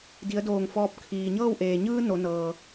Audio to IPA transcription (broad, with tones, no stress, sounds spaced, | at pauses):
d i˩˧ ə̯ d oː˧˩ ŋ f ɔː˧ p̚ kʰ iː˩ ɲ ɤː˥˨ w ʔ eː˩ ɲ ɯː˧ n o˩˧ n ɤː˩